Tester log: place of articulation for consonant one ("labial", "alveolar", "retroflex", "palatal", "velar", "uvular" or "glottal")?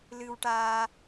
alveolar